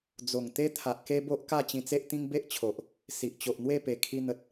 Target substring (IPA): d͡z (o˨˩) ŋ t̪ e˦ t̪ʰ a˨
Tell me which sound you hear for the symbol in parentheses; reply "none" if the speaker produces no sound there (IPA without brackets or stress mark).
o˨˩